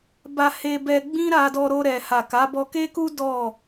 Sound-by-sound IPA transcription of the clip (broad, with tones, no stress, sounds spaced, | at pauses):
b a˧ h e˧ b ɛ˧ ɡ͡b ĩ˦ ɾ a˧ d ɔ˧ ɾ o˧ ɾ ɛ˨ h a˨ k a˨˦ b ɔ˧ k e˦ k u˦ d ɔ˦˨